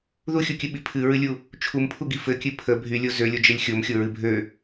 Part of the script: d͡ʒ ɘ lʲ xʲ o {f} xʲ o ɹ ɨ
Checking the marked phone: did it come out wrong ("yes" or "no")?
yes